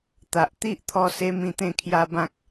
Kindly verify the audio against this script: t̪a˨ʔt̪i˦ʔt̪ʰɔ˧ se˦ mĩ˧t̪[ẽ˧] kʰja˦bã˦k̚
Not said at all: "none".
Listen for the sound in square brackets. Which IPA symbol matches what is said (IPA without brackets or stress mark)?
ẽ˥˧